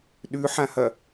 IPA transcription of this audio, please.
ɗʉħãhɐ

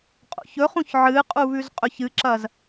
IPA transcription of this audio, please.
qʼo̰çɵχũç ʕɨqʼu βʉzqʼɵçɨǁɐz

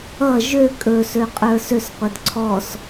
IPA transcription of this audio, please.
ʌ ʒø kʼɵsøqʼə˞ søsqʷɛd ǀʰɔs

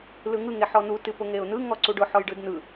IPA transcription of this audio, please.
lɯŋɯ ŋeħɔn̪u tɨpʊŋeʊ̯n̪ɯ ŋɔǀuɖʊ ħɔjɖɯdn̪ɯ

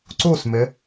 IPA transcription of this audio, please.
ǀusmɪ

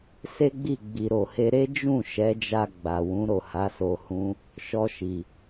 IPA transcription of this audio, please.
se˦ɡ͡bi˦˨ ɡ͡bi˨ɾo˨he˧ ɾe˦d͡ʒũ˦˨ ʃɛ˨˦d͡ʒa˧ ɡ͡ba˨wũ˨˦ ɾo˦˨ha˨˦so˧hũ˦ | ʃɔ˧ʃi˨

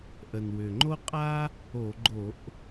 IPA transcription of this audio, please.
ʔə˨˩nwʏ˨˩ ŋ͡ǃo˥qʼa˥ | o˧˩˧ɡ͡ǃo˧˩˧ʔ

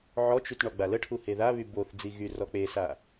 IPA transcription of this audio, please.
ʕɔt͡ʃyt ɳɔɡ͡baləʈʰu heðaβy boθ d͡ziɣyrɔ k͡pesa

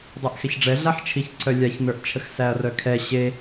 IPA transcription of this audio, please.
dˤaʔxɛçɖ͡ʐɛ ɮaħt͡ʃʰiçǀʰœ lʲaçnə˞ʔt͡ʃʰəx sæɐ̯rœkʰɛ ɕe

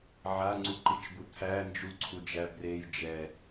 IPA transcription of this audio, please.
ʕaŋ͡ǀuǃit͡ʃbu t̪ʰæ nd͡ʒuǀʰu d͡ʒæbrej d͡ʒɛ

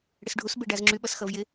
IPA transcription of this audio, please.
ɽɪsɖʱus beɖazŋ͡ǁy ɓʌsxʌvjɪ

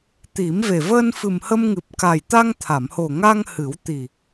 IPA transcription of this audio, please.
t̪i˨˩˦mve˨˩ vəː˧nfɨ˨˩mhə˧mŋɨ˨˩p̚ ka˨˩jt̪a˧ŋt̪ʰa˨˩˨mho˨˩ ŋa˧ŋ hɨ˨˩˦w t̪i˨˩

